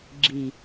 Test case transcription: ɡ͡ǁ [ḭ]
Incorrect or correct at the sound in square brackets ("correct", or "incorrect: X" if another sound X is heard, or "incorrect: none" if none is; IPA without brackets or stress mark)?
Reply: incorrect: i